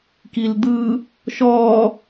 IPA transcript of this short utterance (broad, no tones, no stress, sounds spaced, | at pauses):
k i l d̪ ɯ | ʃ ɔ